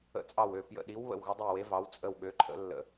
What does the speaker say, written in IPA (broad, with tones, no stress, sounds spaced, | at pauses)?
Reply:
ə̰˧˩ t͡sʼ ɑ˧˩ w ø˧˩ p j ə̰˧˩ ɗ i˨˦ w β ə̰˧˩ w ɣ ə˨˦ dˤ e˧˩ w e˨˦ v ɑ˨˦ w t͡sʼ ə˧˩ w ɠ ø˨˦ ǃʰ ə̰˨˦ lː ə̰˧˩